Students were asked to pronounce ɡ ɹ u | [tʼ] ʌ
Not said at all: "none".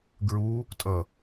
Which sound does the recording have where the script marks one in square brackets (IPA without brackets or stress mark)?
tʼ